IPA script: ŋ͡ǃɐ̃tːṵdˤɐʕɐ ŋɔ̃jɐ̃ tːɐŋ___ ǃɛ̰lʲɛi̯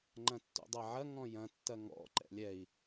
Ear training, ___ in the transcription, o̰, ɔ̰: ɔ̰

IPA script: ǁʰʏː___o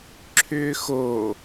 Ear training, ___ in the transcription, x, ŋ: x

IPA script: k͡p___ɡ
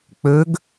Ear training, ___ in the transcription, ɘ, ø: ø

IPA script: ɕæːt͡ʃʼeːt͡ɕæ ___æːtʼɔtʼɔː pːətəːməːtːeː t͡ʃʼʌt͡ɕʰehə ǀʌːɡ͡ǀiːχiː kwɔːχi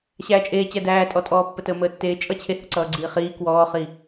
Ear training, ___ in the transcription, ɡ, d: d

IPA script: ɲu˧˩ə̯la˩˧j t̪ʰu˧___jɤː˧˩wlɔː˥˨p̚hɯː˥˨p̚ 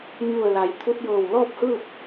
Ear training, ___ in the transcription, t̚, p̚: t̚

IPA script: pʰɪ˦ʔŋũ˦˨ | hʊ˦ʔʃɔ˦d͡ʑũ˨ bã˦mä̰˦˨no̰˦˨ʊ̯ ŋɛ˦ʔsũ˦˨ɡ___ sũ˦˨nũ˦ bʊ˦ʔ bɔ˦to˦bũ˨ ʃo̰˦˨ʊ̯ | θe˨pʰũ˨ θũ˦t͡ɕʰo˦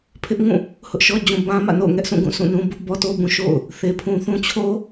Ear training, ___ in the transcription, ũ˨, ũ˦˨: ũ˦˨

